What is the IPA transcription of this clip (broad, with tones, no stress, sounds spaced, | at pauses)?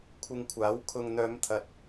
kʷʰ ɪ˧ ŋ kʷʰ aː˨˥ w kʰ ʊ˨ ŋ n̪ œː˨˧ m t̪ʰ ɐ˨ t̚